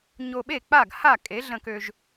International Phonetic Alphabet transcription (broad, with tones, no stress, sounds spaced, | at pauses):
ɲ o˧ ɓ e˥˩ k͡p a˥˩ ɡ h a˥˩ kʼ e˩˥ ɮ ə̃˧ k ø˧ ʒ